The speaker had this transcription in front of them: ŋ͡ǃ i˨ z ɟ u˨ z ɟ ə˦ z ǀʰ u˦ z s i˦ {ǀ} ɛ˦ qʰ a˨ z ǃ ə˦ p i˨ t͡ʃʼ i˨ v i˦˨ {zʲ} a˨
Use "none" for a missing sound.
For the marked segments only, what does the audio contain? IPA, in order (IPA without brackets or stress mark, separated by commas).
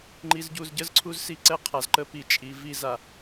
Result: ǀ, z